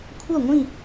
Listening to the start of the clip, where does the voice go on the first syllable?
falling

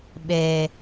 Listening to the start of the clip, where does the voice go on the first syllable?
low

